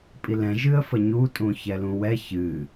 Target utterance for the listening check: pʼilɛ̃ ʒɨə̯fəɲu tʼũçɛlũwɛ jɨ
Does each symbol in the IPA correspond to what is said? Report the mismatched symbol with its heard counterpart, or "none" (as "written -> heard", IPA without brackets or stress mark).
j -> ç